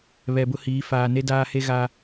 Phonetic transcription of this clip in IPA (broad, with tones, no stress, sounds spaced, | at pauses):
β ɛ˨ b ʊ˦ h iː˨˦ f aː˨ n e˦ d aː˦ h e˦ ɣ a˦